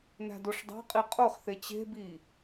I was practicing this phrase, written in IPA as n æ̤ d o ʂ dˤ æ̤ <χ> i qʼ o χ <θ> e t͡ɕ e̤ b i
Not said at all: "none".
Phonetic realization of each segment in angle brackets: qʼ, θ

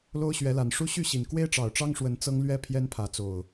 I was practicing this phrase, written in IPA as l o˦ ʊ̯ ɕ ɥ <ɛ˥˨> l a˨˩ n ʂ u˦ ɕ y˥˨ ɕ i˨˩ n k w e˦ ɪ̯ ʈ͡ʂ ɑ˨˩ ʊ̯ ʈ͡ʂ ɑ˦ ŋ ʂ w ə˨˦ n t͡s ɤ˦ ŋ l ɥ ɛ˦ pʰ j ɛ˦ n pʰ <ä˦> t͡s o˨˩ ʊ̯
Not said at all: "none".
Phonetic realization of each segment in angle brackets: ɛ˨˦, ä˨˦

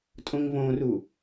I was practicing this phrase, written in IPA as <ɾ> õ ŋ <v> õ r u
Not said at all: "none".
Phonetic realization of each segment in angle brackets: tʼ, v

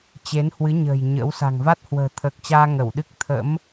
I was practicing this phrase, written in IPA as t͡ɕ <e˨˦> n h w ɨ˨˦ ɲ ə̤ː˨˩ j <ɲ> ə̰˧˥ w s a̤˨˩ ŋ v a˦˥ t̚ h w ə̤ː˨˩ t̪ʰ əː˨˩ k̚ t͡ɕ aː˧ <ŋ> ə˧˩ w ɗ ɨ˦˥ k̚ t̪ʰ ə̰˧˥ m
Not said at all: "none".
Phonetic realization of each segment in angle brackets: e˨˦, ɲ, ŋ

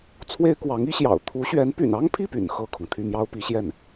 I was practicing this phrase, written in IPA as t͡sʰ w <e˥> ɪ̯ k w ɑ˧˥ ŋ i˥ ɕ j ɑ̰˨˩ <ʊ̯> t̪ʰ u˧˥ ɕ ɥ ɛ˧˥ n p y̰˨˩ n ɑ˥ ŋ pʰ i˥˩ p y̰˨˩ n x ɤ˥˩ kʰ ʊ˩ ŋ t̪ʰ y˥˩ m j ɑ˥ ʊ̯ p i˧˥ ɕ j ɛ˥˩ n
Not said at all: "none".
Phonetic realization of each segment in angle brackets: e˥, ʊ̯

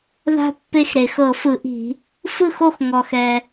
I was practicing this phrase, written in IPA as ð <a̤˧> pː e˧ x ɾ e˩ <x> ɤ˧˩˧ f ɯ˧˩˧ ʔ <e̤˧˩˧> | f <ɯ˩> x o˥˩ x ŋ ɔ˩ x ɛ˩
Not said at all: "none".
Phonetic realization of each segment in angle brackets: a̤˧, x, i̤˧˩˧, ɯ˥˩

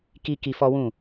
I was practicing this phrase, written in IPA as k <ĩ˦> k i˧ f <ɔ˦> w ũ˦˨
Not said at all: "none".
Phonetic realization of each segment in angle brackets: i˦, ɔ˦

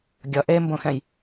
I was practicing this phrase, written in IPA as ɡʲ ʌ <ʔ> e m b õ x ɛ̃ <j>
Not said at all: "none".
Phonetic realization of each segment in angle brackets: ʔ, j

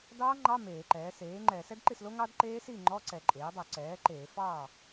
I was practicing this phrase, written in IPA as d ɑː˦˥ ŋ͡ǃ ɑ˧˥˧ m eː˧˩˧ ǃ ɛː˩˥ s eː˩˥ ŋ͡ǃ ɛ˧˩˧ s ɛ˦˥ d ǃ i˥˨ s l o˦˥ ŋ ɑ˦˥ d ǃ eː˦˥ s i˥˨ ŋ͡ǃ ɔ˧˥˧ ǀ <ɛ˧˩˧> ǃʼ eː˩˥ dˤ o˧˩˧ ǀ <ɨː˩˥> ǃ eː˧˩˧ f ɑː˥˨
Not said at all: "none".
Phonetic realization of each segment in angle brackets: ɛ˧˩˧, ɛː˩˥

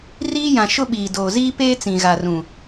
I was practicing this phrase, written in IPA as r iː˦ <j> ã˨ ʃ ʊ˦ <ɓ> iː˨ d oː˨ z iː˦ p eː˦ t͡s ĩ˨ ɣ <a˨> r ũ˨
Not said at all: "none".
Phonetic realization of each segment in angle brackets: j, ɓ, a˨

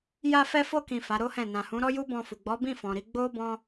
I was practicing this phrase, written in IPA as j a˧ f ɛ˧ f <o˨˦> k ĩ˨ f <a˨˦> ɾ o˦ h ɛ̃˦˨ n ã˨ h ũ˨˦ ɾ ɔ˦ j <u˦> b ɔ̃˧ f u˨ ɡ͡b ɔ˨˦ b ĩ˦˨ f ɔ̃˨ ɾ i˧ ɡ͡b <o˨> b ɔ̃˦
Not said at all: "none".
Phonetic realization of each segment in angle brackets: o˧, a˨˦, u˦, o˦

